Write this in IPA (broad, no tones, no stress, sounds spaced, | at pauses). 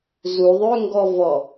z u ðˤ ø ŋ ɡ ɔ v ɔ